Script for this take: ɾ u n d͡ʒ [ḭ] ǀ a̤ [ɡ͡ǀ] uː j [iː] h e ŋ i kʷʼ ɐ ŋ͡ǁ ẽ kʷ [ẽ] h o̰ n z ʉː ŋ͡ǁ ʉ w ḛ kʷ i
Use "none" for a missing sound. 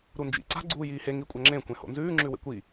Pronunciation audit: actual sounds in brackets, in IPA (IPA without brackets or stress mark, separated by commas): ḭ, ɡ͡ǀ, iː, ẽ